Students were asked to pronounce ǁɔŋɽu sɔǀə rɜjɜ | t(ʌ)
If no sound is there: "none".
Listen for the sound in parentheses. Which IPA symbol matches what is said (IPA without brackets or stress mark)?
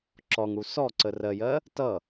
ʌ